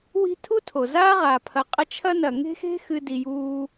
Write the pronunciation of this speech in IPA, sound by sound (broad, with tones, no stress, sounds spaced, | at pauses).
w i̤˥ tʰ u˥ tʰ o˩ z aː˥ ʁ aː˩ pʰ ɐ˨ qʼ ɐ˦ t͡ʃʰ ɐ˥ n ɐ˩ ŋ e̤˥ x e̤˥ x ɨ˨ d i˩ j uː˨